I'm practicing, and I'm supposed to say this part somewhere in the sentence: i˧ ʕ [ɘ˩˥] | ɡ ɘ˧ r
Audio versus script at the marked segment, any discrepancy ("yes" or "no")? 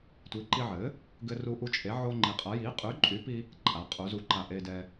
no